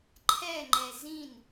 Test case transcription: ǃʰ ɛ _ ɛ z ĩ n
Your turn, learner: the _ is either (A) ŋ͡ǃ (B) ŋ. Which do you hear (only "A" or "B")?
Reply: A